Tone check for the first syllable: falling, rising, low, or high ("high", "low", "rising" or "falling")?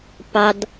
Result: high